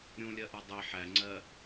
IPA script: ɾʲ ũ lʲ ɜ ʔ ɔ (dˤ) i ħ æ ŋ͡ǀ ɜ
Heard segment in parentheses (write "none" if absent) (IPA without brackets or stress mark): dˤ